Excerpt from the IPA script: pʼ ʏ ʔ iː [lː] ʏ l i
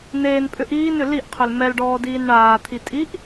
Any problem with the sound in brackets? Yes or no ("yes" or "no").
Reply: yes